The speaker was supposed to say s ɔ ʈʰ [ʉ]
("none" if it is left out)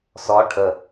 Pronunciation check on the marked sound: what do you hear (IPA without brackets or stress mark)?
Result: ə